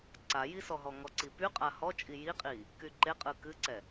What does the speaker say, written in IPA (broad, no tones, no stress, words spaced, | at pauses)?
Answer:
ǀajisɔɦɔ ŋɔǀipy qʼahɔt͡ʃʼi jiqʼi | kyǃeqʼɯ kɨǀɛ